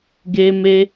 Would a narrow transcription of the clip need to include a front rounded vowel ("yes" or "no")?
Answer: no